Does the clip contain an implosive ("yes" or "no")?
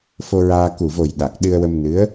yes